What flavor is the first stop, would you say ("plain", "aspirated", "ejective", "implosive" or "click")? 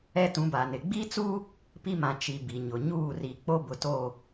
plain